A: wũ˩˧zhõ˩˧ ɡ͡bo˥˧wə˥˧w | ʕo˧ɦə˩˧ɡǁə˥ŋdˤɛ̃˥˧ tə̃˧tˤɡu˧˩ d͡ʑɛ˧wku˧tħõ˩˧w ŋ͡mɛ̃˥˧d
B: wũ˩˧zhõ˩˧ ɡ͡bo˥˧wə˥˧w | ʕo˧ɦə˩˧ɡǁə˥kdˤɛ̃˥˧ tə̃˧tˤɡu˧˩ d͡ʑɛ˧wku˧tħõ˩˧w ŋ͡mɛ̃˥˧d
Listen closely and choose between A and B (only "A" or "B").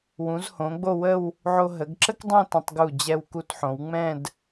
B